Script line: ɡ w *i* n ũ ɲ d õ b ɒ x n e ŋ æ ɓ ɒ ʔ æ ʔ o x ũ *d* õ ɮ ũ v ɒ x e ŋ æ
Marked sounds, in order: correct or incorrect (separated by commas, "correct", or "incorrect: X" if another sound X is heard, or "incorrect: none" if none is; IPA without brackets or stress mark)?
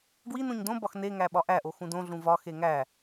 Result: correct, correct